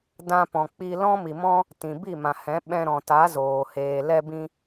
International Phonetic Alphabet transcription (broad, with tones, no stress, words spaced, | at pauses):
dã˧pɔ̃˨k͡pi˧ lɔ̃˦mi˨mɔ̃˦ | tĩ˨bi˦˨mã˨hɛ̃˨˦ ɓɛ̃˧ɾɔ̃˨ta˨˦zoː˨ heː˨lɛ˧bĩ˧